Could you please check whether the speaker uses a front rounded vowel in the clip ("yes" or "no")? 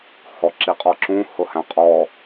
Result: no